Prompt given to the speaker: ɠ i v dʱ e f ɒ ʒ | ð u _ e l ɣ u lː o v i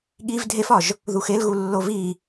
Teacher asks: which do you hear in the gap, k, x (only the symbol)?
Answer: x